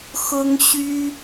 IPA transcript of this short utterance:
x ʊ˦ ŋ ɕ y˦

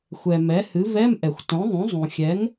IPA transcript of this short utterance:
xʷ ɛ˩ m ɛ˩˥ h ɨ˩˥ v ɛ˧˥˧ m ʔ ɛ˩ xʷ t õ˩˥ ðˤ ũ˩˥ zˤ ũ˩ xʲ ɛ˩˥ ŋ

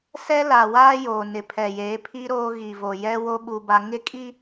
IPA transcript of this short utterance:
s ɛ˦ l aː˨ w aː˦ j oː˨ n ɪ˨ pʰ ɛ˨ j eː˨˦ pʰ i˦ ɾ oː˦ ɣ i˨ v o˨ j ɛ˦ w o˦ ɓ u˦ b a˦ ŋ ɪ˦ kʼ i˦

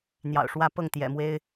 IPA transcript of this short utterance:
n̪ j ɑ̰˨˩ ʊ̯ ʂ w ä˥˧ p ɤ˥˩ ŋ t̪ j ɛ̰˨˩ m w e˥ ɪ̯

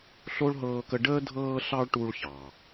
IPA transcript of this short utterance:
ɬ o˦ ɭ ɦ ɤː˧ k ə˧ ɖ əː˦ dʱ ɤː˧ ɬ ɑ˧ ɭ ʈ u˧ ɭ ç ɑ˨

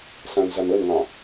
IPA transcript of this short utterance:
s ã n z a n ə n ŋ ɑ̃

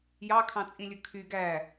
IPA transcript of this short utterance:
j ɑ kʰ ɑ̃ t͡sʼ ĩ lʲ ɯ kʰ y ɡ æ

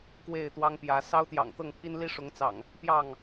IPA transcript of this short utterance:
k w e˥˨ ɪ̯ t̪ w ɑ˦ ŋ p j ä˨˦ s ɑ˦ ʊ̯ t̪ j ɑ̰˨˩ ŋ t̪ ɤ˥˨ ŋ pʰ i˦ n l i˦ ʂ ʊ˨˦ ŋ t͡s ɑ̰˨˩ ŋ | p j ɑ˥˨ ŋ

